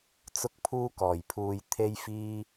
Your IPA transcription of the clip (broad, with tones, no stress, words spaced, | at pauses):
t͡sʊ˧k̚pʰuː˧kɔː˨˩jpʰuː˨j t̪ʰe˧jfiː˧